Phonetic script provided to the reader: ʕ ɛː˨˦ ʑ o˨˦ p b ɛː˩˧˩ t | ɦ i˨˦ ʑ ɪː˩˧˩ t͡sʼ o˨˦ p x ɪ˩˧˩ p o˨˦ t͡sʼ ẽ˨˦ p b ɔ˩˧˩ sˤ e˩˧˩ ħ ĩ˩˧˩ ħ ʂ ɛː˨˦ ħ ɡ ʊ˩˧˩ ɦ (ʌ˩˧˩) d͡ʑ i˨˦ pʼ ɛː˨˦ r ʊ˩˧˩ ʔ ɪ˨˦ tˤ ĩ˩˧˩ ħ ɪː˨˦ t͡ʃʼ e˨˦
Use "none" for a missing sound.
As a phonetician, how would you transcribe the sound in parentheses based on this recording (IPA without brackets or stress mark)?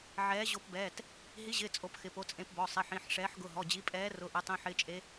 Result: ɔ˩˧˩